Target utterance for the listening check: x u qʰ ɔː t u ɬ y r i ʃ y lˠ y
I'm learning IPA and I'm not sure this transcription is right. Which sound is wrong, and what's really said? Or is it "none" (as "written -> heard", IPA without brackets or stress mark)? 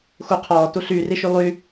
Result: none